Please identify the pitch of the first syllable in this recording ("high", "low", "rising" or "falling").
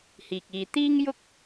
low